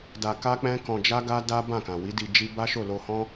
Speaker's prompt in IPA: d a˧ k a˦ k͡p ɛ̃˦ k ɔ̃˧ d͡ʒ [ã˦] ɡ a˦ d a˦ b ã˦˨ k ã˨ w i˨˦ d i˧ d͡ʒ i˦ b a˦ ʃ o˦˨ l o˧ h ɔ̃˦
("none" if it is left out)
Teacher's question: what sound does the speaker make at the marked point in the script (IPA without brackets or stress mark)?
a˦